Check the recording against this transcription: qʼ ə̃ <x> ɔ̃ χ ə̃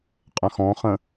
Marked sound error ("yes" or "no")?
no